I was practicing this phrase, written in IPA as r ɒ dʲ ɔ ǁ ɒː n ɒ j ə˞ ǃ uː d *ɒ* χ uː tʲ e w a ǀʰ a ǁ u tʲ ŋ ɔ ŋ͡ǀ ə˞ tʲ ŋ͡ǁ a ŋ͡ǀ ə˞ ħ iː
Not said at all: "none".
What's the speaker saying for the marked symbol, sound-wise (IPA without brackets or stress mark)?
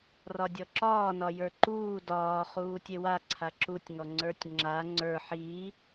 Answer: ɒː